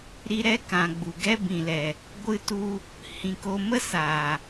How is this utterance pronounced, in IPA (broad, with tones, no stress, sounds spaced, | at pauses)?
ɾ i˧ ɾ ɛ˦ k ã˨ ɡ͡b u˨ ɡ ɛ˦ b ĩ˨ l ɛ˨ | ɡʷ ɨ˧ t u˧ | h ĩ˧ k o˦ m ə˦ s aː˨